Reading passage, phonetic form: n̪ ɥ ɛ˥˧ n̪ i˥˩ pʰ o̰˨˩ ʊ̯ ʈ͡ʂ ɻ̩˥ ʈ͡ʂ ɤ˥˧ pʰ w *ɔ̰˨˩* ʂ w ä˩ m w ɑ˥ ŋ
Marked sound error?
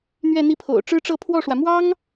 yes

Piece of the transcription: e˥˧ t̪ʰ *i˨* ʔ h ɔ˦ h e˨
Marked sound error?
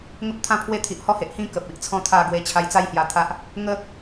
no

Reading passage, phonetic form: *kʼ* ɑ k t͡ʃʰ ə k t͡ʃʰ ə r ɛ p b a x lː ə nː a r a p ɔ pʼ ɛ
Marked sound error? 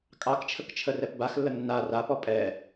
no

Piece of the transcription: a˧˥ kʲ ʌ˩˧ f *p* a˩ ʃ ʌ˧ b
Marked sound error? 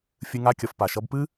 no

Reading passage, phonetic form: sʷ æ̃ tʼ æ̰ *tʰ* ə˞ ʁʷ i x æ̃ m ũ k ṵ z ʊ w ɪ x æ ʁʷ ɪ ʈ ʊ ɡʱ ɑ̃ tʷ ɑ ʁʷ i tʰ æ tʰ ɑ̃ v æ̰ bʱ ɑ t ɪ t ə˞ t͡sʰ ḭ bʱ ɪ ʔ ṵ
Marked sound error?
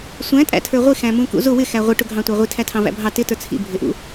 no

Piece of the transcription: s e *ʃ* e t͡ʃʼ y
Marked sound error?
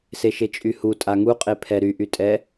no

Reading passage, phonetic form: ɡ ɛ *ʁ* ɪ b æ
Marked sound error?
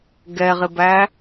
no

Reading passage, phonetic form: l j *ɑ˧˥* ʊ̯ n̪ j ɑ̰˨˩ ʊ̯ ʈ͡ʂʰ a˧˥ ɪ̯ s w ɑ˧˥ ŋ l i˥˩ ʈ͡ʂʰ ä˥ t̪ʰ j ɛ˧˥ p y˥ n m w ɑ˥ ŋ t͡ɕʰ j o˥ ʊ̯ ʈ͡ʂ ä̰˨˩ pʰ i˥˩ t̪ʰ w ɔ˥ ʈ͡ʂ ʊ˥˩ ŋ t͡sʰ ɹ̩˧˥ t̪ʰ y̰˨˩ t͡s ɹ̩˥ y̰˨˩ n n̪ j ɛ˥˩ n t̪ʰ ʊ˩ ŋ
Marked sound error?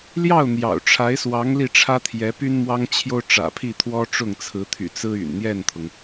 yes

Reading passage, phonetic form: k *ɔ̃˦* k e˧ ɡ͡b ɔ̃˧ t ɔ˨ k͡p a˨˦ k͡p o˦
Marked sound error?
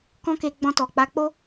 no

